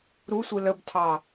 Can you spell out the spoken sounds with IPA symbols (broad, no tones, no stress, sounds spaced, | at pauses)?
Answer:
ɾ u sʷ ɯ l ə b tʰ ɑ